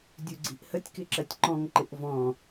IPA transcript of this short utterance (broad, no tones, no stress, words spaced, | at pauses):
dʲuɡ͡ǀi̤ʔhətʲ kɪǁɜtʲǃɔ̃ŋ ǃɪʔvɔ̃